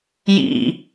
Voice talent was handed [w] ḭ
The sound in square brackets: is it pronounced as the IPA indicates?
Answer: no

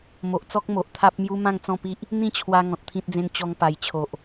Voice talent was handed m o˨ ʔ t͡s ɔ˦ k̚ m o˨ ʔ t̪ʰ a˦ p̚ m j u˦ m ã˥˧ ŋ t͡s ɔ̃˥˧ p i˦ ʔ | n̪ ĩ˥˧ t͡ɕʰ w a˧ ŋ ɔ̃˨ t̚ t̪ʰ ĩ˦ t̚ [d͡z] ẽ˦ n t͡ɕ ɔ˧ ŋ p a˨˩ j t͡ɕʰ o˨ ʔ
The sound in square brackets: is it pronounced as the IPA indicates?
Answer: yes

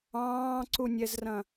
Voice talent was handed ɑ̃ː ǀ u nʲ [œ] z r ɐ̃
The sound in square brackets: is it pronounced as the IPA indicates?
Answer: no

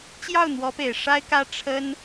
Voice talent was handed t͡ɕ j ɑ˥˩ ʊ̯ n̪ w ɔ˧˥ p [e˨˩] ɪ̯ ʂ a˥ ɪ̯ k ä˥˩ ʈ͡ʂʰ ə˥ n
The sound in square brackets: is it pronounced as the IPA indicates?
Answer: yes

